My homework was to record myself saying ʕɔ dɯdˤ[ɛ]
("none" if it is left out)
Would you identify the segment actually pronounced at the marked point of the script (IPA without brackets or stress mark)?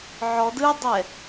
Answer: ɛ